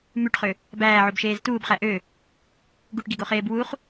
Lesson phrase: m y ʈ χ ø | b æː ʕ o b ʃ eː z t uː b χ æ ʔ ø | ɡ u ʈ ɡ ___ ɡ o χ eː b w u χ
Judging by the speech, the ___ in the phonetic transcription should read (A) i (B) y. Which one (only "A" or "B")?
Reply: A